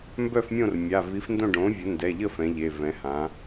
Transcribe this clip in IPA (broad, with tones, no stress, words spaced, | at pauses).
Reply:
mbœ˥˨fmʲõ˥˨rmʲa˩˧˩ vi˩˥fndõ˥˨ ɖõ˩˥vʲə˩˥ndɛ˩˧˩ʎə˥˨ fɛ̃˩˥ʎe˩˧˩ vɛ̃˩˥hã˩˥